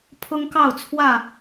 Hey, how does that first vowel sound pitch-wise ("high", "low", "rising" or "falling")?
high